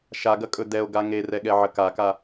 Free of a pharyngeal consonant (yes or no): no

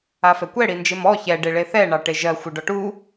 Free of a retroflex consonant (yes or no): no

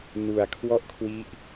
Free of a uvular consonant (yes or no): yes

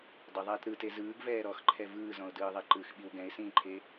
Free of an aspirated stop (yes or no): no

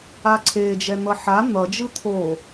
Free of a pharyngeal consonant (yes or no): no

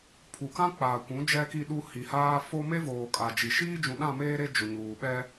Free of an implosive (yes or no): no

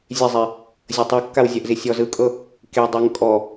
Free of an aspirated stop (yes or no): yes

